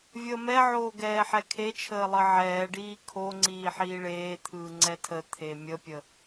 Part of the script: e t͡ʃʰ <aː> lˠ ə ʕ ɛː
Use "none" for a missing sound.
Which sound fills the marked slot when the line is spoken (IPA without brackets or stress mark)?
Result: əː